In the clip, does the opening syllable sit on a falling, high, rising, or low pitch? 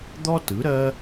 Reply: high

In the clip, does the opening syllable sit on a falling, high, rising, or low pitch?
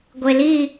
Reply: low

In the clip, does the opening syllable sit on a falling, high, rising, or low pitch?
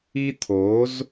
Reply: high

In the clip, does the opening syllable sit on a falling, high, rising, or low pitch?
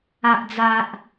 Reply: low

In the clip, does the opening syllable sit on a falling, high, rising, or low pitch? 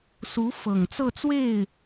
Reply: rising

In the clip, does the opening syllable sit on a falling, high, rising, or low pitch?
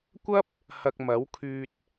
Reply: high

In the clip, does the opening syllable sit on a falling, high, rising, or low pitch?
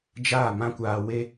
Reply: falling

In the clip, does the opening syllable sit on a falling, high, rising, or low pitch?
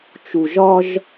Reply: low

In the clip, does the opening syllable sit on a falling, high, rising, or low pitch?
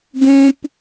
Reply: high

